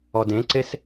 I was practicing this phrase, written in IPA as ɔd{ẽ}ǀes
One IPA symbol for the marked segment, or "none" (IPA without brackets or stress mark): ẽ